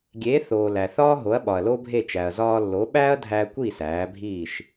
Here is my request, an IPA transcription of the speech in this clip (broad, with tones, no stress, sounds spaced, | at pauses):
ɡʲ e˩˥ θ oː˩ l æ˩ θ ɒː˥ ɦ o˩˥ ɐ̯ ɓ ɒ˩ ɐ̯ l o˥ bʱ e˥˩ t͡ʃ æ˩ ɐ̯ z ɒː˧ lː o˩˥ ɓ æ˥ ɐ̯ dʱ æ˧ kʷ i˥˩ s æː˩˥ bʱ iː˥˩ ʃ